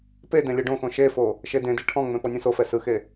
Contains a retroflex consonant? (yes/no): yes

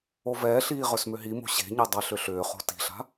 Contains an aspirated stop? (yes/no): no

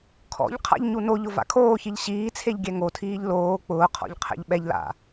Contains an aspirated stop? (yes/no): yes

